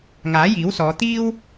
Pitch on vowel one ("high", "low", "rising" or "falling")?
rising